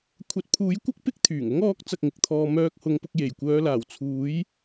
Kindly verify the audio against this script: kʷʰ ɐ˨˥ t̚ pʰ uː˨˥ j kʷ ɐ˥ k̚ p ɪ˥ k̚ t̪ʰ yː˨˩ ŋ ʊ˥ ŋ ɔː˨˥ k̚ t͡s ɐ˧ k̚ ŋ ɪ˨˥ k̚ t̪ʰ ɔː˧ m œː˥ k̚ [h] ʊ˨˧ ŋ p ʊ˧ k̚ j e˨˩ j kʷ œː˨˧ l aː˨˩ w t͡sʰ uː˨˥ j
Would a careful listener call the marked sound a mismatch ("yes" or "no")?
no